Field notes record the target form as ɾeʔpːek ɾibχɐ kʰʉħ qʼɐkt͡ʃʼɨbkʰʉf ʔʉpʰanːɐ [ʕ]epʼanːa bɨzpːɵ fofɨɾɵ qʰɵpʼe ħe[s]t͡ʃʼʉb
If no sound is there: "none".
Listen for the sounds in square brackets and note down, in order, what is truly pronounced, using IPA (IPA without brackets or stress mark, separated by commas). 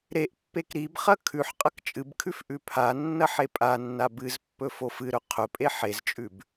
ħ, z